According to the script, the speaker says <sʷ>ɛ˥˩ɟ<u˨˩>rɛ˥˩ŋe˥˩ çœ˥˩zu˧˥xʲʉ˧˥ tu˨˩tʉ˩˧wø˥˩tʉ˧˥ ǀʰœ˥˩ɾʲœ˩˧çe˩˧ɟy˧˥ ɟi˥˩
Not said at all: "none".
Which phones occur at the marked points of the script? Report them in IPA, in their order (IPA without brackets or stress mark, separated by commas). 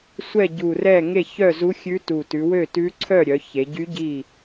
sʷ, u˨˩